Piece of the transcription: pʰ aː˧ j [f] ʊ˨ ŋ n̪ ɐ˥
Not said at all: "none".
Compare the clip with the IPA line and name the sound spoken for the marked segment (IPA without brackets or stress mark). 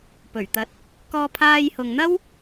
h